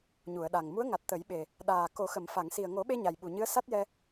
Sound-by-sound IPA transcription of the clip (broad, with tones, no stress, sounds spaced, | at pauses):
ɲ u˨˩˨ ə̯ ɗ a˨˩ ŋ m u˧˥ ə̯ ŋ a˨˩ t̚ t̪ ə˨˩˦ j ɓ e˨˩ | ɗ aː˨˩ k o˨˩˦ x ə˨˩˨ m f a˨˩˨ ŋ s i˨˩ ə̯ ŋ o˨˩˦ ɓ e˧ ɲ a˨˩ j ɓ u˨˩ ɲ ɨ˧˥ ə̯ s a˦˥ t̚ j ɛ˧